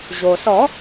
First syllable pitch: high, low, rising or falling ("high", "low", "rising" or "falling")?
low